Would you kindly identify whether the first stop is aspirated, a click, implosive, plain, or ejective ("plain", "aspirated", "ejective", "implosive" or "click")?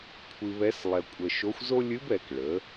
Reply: aspirated